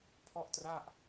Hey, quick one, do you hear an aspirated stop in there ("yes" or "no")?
yes